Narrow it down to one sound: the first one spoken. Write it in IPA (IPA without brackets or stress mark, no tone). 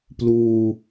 p